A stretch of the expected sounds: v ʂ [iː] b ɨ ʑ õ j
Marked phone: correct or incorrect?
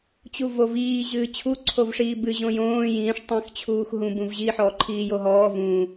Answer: correct